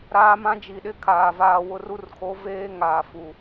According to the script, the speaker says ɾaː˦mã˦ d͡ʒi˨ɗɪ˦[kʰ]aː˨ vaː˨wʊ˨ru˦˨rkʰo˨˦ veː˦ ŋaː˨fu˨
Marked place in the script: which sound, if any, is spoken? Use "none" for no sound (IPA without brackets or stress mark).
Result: kʰ